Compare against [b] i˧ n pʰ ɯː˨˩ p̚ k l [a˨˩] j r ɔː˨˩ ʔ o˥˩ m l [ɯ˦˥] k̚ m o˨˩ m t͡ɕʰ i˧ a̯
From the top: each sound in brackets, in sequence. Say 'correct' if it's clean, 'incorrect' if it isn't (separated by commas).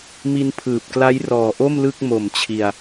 incorrect, incorrect, incorrect